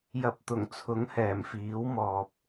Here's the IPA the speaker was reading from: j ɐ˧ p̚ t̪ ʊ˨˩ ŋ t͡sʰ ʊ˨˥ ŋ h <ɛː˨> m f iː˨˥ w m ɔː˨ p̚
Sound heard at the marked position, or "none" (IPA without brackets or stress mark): ɛː˨˩